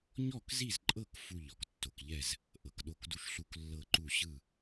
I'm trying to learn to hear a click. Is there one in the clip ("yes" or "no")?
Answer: yes